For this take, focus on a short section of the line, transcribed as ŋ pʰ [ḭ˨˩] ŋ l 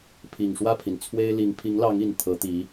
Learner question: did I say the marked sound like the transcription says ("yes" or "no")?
no